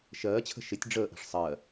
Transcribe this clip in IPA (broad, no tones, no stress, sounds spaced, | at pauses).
ʃ ɜː t͡ɕʰ ə̤ ʃ ɪ tʲ ɖ͡ʐ əː ʔ ɛ̤ ʂ sˤ ɜ